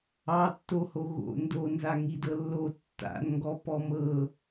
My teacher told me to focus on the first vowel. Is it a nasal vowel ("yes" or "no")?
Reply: no